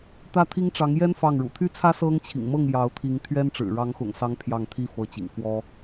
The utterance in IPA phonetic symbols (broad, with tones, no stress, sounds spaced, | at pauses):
t̪ ä˥˩ t̪ʰ i˥ ŋ ʈ͡ʂ ɑ˧˥ ŋ j ɛ˥ n f ɑ˥˩ ŋ ɻ ṵ˨˩ t̪ʰ y˥ t͡sʰ ä˥ s ɤ˥ ŋ t͡ɕʰ ḭ˨˩ ŋ m ɤ˥˩ ŋ j ɑ˧˥ ʊ̯ t̪ʰ i˧˥ ŋ t̪ʰ ɥ ɛ˥ n ʈ͡ʂ ɻ̩˨˩ ɻ ɑ˧˥ ŋ x ʊ̰˨˩ ŋ s ɑ˧˥ ŋ pʰ j ɑ˥˩ ŋ t̪ʰ i˥ f ɤ˧˥ t͡ɕ ḭ˨˩ ŋ f w ɔ˥